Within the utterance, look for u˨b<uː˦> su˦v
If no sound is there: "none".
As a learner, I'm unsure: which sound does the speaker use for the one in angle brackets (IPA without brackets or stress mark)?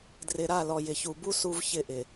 u˦